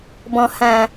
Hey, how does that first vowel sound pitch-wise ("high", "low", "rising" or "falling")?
low